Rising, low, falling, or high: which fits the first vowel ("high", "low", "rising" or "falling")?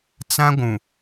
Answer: high